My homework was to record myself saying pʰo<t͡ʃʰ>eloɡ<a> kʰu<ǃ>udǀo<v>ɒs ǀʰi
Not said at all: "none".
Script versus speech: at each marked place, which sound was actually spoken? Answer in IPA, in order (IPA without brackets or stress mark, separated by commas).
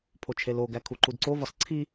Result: t͡ʃʰ, æ, ǃ, v